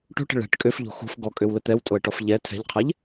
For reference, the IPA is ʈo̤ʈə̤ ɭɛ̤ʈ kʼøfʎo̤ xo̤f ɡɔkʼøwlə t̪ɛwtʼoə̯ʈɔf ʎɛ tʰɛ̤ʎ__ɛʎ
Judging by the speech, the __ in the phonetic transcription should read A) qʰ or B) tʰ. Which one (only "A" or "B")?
A